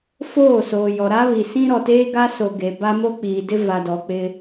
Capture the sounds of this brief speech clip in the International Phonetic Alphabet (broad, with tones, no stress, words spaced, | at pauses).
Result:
foː˦˨soː˨jɔ˨ ɾa˦βi˨sĩ˦ ɾɔ˨teː˦ɡa˦so˨ ɡe˨ba˦ mo˦k͡piː˨dɪ˦ va˨dɔ˨ k͡pɪ˦